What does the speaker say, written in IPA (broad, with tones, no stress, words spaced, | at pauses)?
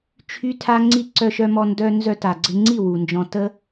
t͡ʃʰy˦tʰa˦ŋ͡ǀi˦ ǀœ˧ʃœ˧mɔ˧ ndœ˦ nzœ˧ta˨ɡ͡ǀɪ˧ŋ͡ǀi˦˨ wu˨nd͡ʒɔ̃˧ tə˦